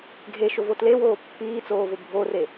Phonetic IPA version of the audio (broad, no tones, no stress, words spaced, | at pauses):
ɡʱeʃʊvo tlewoː pːiːt͡soːvʊ bʱore